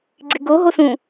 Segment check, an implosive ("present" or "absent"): absent